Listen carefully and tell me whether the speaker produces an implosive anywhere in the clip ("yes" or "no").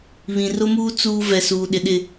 yes